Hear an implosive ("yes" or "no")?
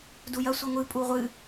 no